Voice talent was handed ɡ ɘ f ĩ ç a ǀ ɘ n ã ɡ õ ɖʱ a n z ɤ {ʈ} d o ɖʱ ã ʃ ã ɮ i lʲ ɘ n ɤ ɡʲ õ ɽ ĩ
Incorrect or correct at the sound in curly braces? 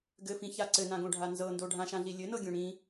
incorrect: n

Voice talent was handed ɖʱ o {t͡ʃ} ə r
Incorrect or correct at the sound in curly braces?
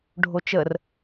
correct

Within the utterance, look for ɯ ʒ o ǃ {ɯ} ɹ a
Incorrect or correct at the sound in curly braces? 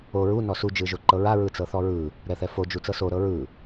incorrect: ɤ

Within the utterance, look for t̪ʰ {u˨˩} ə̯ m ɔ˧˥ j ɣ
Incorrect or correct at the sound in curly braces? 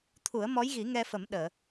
incorrect: u˨˩˦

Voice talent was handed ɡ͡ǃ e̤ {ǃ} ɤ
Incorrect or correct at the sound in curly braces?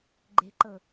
correct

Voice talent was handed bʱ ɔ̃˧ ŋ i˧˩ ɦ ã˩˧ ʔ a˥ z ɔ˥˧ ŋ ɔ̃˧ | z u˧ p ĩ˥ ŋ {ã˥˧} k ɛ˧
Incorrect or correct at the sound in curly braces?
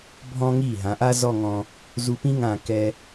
incorrect: ã˧˩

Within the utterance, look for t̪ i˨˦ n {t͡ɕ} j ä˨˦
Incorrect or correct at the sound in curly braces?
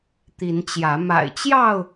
correct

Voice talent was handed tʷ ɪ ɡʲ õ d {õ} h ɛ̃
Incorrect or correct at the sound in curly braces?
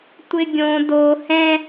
incorrect: o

